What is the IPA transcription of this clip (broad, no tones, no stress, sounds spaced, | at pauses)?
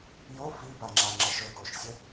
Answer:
j o f i b a ŋ͡ǁ a ŋ͡ǁ ə ʃ ɵ k o ʃ sʲ ə